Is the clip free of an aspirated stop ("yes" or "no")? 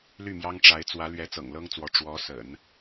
yes